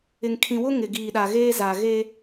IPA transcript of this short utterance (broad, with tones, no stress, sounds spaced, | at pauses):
ɪ˨ ŋ kʰ ĩ˨ w ʊ˦ ŋ ɪ˨ ɡ iː˨ ɗ a˨ ɣ eː˦ z a˨ ɣ e˦